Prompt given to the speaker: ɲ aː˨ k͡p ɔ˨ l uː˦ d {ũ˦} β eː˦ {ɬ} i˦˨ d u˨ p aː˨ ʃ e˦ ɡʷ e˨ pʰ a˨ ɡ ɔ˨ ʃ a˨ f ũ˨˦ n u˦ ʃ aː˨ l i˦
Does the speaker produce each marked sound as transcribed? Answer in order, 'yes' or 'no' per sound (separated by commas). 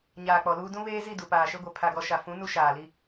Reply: yes, no